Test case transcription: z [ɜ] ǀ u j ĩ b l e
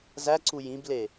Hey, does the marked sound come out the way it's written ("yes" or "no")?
no